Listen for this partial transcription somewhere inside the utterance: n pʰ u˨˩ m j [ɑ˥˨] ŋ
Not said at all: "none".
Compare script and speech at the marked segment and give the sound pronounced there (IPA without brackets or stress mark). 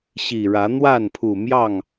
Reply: ɑ˥˨